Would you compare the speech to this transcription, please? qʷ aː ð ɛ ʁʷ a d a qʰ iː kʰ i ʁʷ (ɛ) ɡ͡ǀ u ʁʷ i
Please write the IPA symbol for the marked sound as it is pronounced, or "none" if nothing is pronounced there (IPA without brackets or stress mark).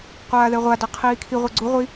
e